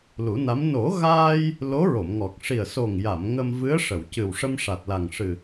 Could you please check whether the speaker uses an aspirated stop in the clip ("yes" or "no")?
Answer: no